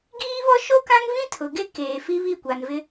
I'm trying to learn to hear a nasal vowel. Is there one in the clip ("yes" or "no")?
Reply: yes